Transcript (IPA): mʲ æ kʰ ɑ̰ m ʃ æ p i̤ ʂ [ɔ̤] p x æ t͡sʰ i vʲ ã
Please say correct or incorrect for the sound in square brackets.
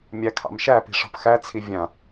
correct